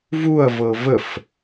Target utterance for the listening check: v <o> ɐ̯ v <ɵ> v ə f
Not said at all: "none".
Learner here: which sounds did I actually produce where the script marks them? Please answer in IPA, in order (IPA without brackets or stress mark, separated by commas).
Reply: u, ɤ